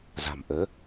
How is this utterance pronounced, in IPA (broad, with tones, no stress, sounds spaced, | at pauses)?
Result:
z a̤˨˩ m ʔ əː˨˦